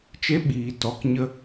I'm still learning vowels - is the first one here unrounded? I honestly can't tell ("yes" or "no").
yes